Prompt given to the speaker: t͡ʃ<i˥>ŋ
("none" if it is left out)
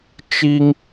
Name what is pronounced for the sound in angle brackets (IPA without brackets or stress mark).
i˥